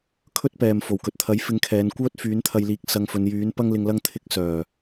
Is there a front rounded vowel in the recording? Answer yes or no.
yes